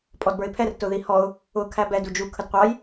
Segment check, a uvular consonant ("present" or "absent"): present